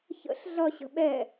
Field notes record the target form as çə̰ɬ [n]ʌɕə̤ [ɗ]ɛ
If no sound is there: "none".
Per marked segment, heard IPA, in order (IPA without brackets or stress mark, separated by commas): ɮ, ɓ